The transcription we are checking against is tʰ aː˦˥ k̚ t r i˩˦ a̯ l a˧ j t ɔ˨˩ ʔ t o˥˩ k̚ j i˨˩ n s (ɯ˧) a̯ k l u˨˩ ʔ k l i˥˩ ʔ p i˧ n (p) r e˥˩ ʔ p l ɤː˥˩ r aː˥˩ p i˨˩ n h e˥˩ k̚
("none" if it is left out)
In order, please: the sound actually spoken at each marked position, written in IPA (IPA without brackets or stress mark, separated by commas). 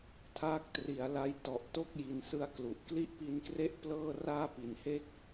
ɯ˧, k